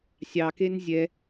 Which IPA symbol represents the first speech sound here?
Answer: sʲ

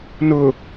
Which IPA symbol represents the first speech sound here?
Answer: n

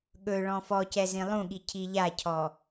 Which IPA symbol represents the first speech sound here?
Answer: ɠ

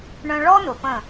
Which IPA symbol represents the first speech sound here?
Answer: ɳ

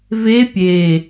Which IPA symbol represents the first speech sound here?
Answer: v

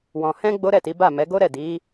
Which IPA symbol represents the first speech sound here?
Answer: w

